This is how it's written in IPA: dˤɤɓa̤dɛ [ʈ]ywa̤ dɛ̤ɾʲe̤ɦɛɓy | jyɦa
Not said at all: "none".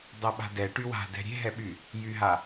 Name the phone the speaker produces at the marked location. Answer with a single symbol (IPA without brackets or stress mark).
ʈ